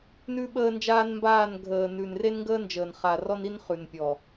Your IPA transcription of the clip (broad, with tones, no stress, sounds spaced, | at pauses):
n ʉ˦ ɓ əː˦ n d͡ʒ aː˦ n m b aː˦˨ n ɡʱ əː˨ n ʉ˨ n r e˦ n ŋ ɡ əː˦ n d͡ʒ əː˨ n χ a˨ r ɔ˦ n i˦ n χ ʉ˨ n pʲ ɔ˨